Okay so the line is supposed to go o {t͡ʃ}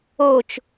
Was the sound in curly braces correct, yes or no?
yes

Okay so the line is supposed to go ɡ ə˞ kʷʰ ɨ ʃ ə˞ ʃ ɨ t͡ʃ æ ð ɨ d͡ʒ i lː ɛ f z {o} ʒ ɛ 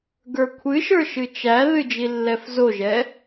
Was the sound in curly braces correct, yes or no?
yes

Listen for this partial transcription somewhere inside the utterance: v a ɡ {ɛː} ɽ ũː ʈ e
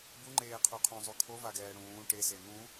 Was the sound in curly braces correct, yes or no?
yes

